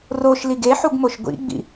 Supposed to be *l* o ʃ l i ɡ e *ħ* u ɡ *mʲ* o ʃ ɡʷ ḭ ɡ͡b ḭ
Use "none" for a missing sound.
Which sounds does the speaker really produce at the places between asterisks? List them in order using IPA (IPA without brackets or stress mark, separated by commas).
r, ħ, m